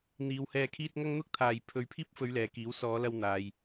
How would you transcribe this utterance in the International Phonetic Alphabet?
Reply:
n̪ iː˨˧ w h ɛː˧ kʰ iː˥ t̚ ŋ ɐ˥ ŋ n̪ ʊ˥ k̚ t̪ʰ aː˨ j pʰ ɵ˨˧ ɥ pʰ iː˥ p̚ f ɵ˨˧ ɥ l ɛː˨˧ k iː˨˥ w s ɔː˨˧ l ɐ˧ w n̪ aː˨ j

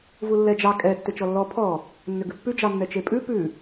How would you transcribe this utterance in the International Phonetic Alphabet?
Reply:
v u lː ɛ d͡ʒ ɑ kʼ ɛ tː ʏ t͡ʃ ɔ lː ɔ pʰ ɔ | nː ʏ ɡ ʉ pː ʉ d͡ʒ ɑ nː ɛ t͡ʃ e pʼ ʉ p ʉ

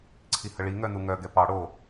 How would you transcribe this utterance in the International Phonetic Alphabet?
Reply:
ǀʰ i h ə ɭ i ŋ œ n u ŋ œ ɡ ɛ p ɑ ɽ o

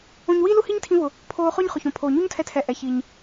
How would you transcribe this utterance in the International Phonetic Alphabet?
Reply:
õ˧ ɲ w i˥ l u˥ h i˥ ɲ tʰ ĩ˧ v ʊ˩ | pʰ oː˧ χ ʊː˥ ɲ χ ʊ˩ ç õ˩ pʰ oː˩ ɲ u˥ ɲ tʰ ɛ˧ tʰ ɛ˩ ʔ ɛ˩ ç i˩ ɲ

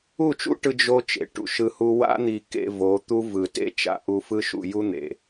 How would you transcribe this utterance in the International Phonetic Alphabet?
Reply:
u˦˨ t͡ʃ ṵ˦ ʈ ɯ˧ d͡ʒ o˦ t͡ʃ ḛ˨ ʈ ṵ˨ ʃ ɯ˧ h u˦ w a̰˦ n̪ i˧ k ḛ˧ v o˨˦ t̪ u˦ v ɯ˨ t ḛ˦˨ t͡ʃ a̰˨ ʔ u˧ f ɯ˦ ʃ ṵ˧ j u˦ n̪ ḛ˨

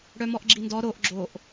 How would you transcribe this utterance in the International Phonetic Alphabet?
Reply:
ɽ œ m ɔ ʔ ɡ͡ǁ i n d ɔ ɾ o ʔ ɡ͡ǁ o ʔ

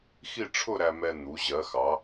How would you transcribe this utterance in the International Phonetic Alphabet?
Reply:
x i˥˧ ʈ͡ʂʰ ʊ˥˧ ɾ æ˧ m ɛ˧ n̪ u˩˧ ʑ ɜ˩˧ x ɑ˩˧

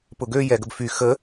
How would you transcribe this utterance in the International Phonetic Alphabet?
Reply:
p ʊ ɡ ø j ɛ ɡ ə b f y x ə

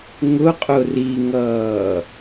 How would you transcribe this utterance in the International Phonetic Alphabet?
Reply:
ŋ ʊ qʼ ʊ r i ŋ ʌː

